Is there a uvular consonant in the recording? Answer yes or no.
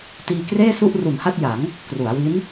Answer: no